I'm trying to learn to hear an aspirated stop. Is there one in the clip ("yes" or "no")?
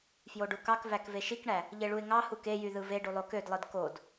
no